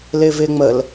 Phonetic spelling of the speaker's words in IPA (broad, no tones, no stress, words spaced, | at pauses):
lɪːvɪːŋ͡məl